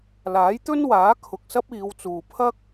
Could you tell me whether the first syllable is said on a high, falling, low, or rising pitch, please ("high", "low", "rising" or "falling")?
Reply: rising